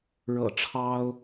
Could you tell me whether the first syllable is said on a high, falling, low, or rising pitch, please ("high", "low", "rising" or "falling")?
low